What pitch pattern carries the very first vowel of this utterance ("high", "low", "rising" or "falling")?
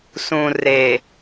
low